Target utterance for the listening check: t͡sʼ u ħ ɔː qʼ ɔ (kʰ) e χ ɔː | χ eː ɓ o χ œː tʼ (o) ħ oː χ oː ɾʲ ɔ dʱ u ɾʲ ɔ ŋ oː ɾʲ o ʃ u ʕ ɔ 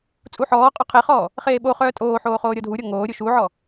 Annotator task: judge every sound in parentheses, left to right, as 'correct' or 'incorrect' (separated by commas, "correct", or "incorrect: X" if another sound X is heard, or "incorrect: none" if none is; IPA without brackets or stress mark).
incorrect: qʰ, incorrect: oː